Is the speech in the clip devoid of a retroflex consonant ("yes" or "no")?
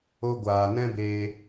yes